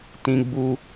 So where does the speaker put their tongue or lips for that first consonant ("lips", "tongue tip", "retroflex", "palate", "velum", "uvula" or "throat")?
tongue tip